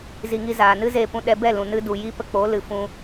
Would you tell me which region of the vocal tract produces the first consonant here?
tongue tip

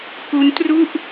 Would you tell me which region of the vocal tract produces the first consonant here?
velum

